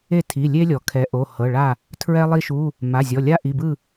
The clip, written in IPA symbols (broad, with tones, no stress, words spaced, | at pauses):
e˥˨tʰi˩˧˩lʲe˥lʲɔ˩ kʰɛ˩˧ʔo˩˧˩hɤ˩˧˩ɭa˥˨ | tʰɹɛ˥lˠi˥ʃu˧˥˧ | ma˩˧˩zʲɔ˩˧˩ lʲa˥ʔi˩˧˩bɯ˥˨